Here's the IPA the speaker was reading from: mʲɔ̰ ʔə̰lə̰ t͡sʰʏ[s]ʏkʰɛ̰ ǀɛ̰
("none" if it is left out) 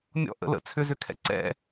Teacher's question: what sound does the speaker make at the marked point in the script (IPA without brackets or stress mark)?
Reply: z